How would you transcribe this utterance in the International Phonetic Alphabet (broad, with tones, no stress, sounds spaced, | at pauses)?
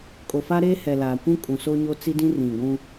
kʼ o˨ f a˦ ɾ eː˦ h ɛ˨ l aː˨ kʷ ũ˦ kʼ ũ˨ s o˦ ɲ o˦ t͡s i˦ d ĩ˦ r ĩ˨ ɡʷ ũ˦